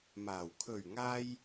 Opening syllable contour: low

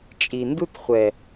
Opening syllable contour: low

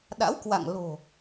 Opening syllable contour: rising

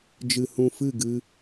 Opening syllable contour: low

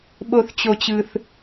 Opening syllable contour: high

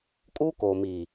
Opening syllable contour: high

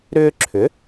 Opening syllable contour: high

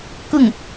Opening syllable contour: falling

